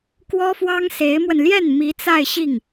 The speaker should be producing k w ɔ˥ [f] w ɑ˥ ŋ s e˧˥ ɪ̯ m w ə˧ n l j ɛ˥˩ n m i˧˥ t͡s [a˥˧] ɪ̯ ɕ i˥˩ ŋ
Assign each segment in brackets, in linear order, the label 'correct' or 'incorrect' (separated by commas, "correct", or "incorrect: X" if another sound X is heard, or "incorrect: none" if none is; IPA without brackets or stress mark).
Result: correct, correct